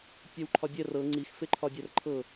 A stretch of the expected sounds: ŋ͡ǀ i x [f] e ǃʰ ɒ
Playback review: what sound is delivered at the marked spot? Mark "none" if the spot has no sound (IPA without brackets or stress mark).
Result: f